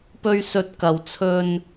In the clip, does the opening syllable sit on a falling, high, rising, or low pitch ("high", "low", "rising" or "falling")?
low